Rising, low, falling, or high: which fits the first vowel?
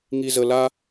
low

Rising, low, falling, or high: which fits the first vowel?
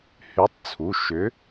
rising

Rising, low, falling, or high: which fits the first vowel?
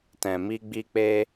low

